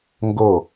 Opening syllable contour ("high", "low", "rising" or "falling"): falling